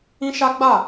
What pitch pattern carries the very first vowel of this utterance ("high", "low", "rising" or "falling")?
high